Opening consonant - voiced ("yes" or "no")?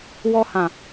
yes